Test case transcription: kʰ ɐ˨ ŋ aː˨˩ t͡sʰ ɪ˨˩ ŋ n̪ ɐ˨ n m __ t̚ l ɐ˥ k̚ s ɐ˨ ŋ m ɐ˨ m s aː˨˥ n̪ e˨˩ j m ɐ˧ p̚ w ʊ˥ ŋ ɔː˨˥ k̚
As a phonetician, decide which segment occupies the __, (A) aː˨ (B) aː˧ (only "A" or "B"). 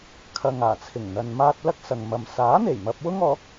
B